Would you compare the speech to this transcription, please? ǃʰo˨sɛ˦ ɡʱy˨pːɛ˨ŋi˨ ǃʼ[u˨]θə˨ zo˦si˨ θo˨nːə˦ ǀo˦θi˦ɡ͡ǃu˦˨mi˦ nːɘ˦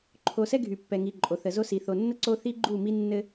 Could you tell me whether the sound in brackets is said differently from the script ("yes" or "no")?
yes